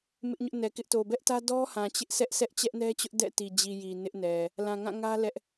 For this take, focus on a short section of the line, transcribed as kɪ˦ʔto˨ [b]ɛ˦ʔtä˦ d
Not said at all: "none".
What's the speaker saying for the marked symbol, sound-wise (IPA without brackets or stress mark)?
b